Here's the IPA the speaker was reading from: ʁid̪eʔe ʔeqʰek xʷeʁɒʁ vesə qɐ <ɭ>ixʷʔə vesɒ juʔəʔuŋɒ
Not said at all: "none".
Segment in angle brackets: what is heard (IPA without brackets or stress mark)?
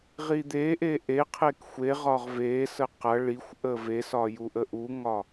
ɭ